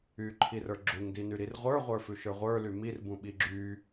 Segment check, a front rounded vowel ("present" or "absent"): present